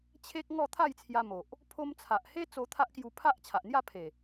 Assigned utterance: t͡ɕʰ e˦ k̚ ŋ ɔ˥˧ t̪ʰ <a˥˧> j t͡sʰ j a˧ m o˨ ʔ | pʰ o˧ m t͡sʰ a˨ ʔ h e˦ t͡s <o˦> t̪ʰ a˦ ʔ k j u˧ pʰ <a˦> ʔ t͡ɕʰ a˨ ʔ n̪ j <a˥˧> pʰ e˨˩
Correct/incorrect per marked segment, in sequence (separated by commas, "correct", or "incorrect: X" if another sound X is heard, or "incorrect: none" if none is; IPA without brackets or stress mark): correct, incorrect: o˧, correct, correct